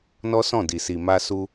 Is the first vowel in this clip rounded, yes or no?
yes